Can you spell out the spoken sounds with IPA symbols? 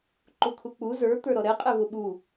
ǃ u kʰ u k͡p u z ə˞ t̪ ə˞ ɾ ɔ ɾ ɛ qʼ ɛ v ʊ ɓ u

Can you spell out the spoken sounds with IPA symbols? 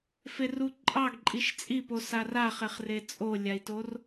f e r u ǃʼ ɑ ɡ ǃʼ i ʃ t͡sʼ i p o s a r a χ e χ r e t͡sʼ o lʲ a i̯ t o r

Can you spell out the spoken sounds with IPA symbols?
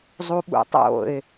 zˤ u ɓ ṵ tˤ o̰ ɪ̯

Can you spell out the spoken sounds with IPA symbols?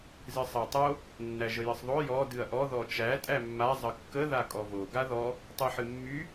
z ɨ sˤ a tˤ o | nː æ ʒ ə j ɨ sˤ ðˤ o j ɔ d ɨ ɐ̯ ʔ ɔ ð ɔ t͡ʃ æ tʼ æ mː a zˤ ə kː ə ð a kʼ ɔ v o ɡ a ð ɔ | tˤ ɨ ħ ɨ mː y

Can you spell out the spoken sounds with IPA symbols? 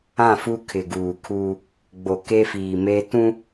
ã˦˨ f u˦ kʰ ɪ˨ ɡ uː˨ kʰ uː˦ | ɡ͡b o˨ k e˦ f iː˨ m e˦ t ũ˦

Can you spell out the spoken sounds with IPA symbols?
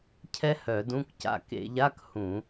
cʰ ɛ˥ h œ˧˩˧ d ũ˧˥˧ k c a̰˧˩ k ḛ˧˩˧ ʎ a˧˥˧ k h ũ˧˩˧

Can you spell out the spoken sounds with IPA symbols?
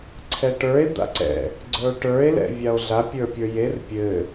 ǀʰ ɛ ʈ ə˞ e̯ d̪ a̰ ǀ ɛ̰ | ɡ͡ǀ ə˞ o̯ ʈ ə˞ e̯ l ɛ̰ vʲ a o̯ ɮ a pʲ ə˞ pʲ ə˞ j e r pʲ ɘ

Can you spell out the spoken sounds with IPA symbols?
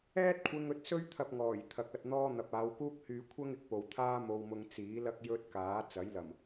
ɛː˥ t̚ kʷʰ ɪ˧ ŋ ɵ˨˥ t̚ s ɵ˥ ɥ t̪ʰ ɐ˧ p̚ ŋ ɔː˨˩ j t̪ʰ ɐ˨ k̚ ɐ˨ t̚ n̪ ɔː˥ n̪ ɐ˨ p̚ aː˨˧ w k uː˥ k̚ h yː˧ kʷʰ ɐ˥ ŋ ɪ˨ k̚ p o˨ w t̪ʰ aː˥ m o˧ w m ʊ˧ ŋ t͡s iː˨˥ l ɐ˥ k̚ j ɵ˥ t̚ k aː˨˥ t͡s ɐ˨˥ j l ɐ˨˩ m

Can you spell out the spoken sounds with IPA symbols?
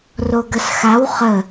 r o ɡ ə s x a w χ ə

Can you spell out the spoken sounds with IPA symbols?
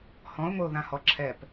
h ɔ̃ ʊ̯ ŋʷ ɘ ʊ̯ ð ã h ɔ ǁʰ ɛ p

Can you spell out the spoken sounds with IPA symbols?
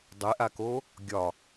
dˤ e ʔ a k o | ɡʲ ɒ

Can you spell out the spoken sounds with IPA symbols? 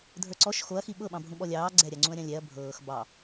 dʱ ə˞ ǀ ɔ ʃ x o ɐ̯ x i ɓ ɤ ɓ ɑ̃ bʱ ũ ɓ ɔ lʲ ɑː ɡ͡ǀ ɛ ɾʲ a ŋ͡ǀ ũ ɐ̯ ɾʲ ɑ̃ lʲ ɛ ɐ̯ bʱ ɤː x b ɑ

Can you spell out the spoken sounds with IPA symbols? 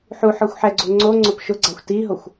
ħ u ħ ɔ xʷ ħ ɛ ɡ͡ǀ o ŋ͡ǀ o ŋ͡ǀ ʊ p ʃ ʊ ɡ͡ǀ a xʷ t i ɦ o xʷ

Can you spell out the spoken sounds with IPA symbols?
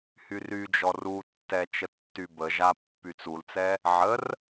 h y r y d͡ʒ ɔ r u tː ɛ t͡ʃ ə tː y b ə ʒ a pː y t͡s u l t͡s ɛ | ʕ ə r

